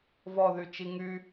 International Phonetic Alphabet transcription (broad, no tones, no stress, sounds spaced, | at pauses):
v ɔ ð y t͡ʃ i ŋ y